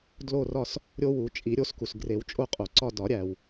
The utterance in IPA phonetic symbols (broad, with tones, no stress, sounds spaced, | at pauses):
d l o˦˨ r ɒ˦˨ s | ɾʲ o˦ w u˨˩˦ t͡ʃʼ i˨˩˦ ɾʲ o˨˩˦ s k u˩ s ɡ r e˨˩˦ w t͡ʃʼ o˦˨ qʼ o˩ ǀ ɒ˦˨ d ɒ˨˩˦ ɾʲ æ˩ w